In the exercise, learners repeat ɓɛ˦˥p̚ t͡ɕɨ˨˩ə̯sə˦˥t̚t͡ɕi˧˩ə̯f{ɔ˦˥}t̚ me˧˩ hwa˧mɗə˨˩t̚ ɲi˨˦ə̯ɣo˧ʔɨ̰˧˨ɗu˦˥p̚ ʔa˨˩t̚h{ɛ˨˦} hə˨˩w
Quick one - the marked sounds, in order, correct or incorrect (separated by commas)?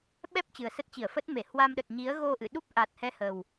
incorrect, correct